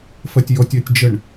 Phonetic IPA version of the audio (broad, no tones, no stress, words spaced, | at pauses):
fɜtʲjɔtʲ ɜtʲd͡ʒəɳ